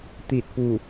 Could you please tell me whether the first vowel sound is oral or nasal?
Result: oral